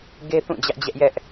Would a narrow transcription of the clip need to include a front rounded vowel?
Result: no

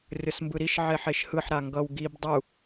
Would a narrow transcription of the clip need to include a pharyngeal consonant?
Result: yes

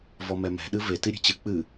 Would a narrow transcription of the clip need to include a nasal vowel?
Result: no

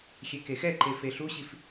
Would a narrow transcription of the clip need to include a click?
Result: yes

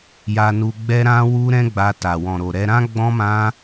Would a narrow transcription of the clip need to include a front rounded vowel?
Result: no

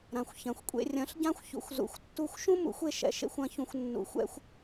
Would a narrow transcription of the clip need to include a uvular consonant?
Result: no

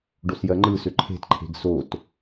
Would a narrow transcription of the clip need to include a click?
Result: yes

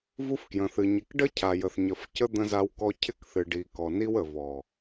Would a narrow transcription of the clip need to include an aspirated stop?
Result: yes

